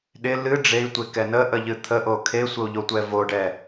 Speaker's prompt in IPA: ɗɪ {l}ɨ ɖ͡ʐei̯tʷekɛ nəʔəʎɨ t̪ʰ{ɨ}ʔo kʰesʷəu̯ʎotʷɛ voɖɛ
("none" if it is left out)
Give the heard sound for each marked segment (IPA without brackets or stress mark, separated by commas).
l, ə